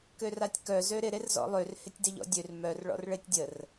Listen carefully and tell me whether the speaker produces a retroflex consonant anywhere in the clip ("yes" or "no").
yes